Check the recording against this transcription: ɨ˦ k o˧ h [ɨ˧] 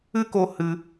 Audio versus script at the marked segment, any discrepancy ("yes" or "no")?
no